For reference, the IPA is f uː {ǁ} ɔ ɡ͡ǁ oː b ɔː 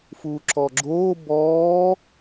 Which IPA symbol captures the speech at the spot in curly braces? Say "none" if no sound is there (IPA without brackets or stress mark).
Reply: ǁ